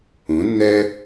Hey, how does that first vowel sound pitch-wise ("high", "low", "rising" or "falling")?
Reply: rising